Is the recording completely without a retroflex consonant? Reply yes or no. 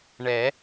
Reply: no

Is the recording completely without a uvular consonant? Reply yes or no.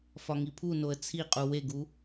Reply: no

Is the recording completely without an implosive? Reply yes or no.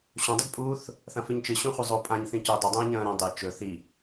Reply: yes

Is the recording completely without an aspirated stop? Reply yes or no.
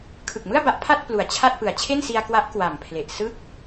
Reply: no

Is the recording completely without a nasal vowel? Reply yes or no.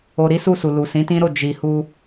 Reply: no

